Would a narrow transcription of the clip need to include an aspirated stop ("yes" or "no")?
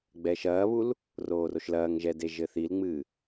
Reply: no